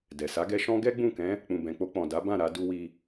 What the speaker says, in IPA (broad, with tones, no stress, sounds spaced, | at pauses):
d ɛ˨ s a˨˦ ɡ ɛ˧ ʃ ɔ̃˦ ɡ ɛ˦ ɡ͡b ũ˦˨ k ɛ̃˨˦ | k͡p ũ˨ b ɛ̃˨ k͡p o˧ k͡p ɔ̃˨ d a˨˦ b ã˦˨ ɾ a˧ d u˧ w i˧